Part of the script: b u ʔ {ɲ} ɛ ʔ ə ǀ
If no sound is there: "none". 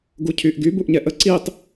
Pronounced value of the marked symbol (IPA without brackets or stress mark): ɲ